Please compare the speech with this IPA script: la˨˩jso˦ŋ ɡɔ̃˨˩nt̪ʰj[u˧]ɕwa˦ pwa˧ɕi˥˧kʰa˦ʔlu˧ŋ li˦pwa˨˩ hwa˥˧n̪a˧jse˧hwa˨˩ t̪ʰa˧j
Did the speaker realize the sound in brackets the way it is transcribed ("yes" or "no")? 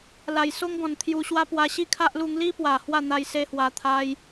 yes